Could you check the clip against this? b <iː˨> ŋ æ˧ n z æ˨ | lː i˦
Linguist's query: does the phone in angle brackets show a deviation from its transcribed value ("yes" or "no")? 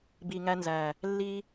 yes